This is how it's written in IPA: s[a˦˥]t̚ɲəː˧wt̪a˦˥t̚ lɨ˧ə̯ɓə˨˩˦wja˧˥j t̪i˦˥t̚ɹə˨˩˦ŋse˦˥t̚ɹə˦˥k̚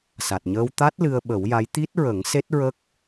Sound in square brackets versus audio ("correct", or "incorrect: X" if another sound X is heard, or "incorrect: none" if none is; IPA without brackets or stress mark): incorrect: a˨˩